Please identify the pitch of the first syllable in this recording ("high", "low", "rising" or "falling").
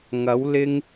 rising